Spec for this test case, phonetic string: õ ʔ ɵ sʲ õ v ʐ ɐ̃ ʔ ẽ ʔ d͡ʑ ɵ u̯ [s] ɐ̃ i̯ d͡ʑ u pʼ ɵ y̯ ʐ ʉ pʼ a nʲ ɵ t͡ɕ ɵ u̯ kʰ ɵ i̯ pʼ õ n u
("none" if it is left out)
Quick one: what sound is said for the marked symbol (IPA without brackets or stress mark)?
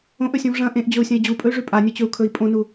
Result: sʲ